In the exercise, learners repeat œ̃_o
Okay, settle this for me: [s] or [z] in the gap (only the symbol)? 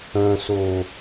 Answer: s